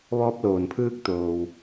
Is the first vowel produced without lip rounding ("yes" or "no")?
no